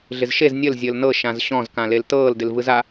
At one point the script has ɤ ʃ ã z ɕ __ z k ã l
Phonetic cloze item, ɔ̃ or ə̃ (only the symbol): ɔ̃